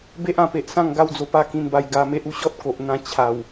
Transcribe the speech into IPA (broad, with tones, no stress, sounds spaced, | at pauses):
b e˦ ʔ ã˧ p e˨ ʔ s ã˥˧ ŋ ɡ a˦ w d͡z o˧ p a˥˧ k ĩ˧ n b a˧ j ɡ a˧ m e˦ ʔ u˥˧ ɕ ɔ˦ t̚ k o˨ ʔ n̪ ã˧ t͡ɕʰ a˨˩ w